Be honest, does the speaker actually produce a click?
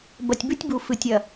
no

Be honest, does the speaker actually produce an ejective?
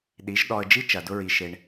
no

